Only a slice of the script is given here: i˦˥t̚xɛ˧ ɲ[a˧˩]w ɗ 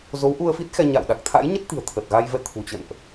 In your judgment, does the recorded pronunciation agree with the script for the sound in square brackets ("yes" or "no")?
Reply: no